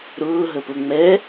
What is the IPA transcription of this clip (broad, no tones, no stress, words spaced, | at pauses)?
ɾʊːɦəpʊ ŋ͡mɛ